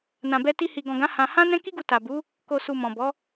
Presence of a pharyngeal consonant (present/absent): absent